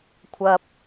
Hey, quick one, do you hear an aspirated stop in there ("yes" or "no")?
yes